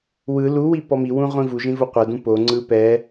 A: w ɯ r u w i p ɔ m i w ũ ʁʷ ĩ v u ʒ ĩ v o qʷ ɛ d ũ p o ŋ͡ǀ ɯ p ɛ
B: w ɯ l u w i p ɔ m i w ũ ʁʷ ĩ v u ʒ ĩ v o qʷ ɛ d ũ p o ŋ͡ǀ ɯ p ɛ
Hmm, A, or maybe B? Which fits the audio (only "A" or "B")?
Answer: B